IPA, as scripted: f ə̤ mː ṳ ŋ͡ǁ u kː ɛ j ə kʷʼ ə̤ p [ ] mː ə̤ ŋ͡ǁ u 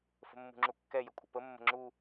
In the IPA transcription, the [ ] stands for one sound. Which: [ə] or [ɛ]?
ə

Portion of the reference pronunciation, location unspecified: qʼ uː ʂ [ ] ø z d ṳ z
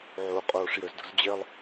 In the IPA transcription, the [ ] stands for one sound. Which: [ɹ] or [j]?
j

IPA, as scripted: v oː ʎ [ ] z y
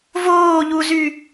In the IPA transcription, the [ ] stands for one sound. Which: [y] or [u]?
u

